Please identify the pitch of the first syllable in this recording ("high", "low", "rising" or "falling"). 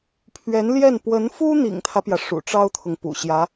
rising